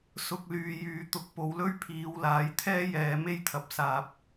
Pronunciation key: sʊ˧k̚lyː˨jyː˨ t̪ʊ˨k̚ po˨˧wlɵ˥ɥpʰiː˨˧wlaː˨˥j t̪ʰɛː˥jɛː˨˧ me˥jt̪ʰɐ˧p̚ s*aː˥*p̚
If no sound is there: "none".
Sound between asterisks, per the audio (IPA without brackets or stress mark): aː˧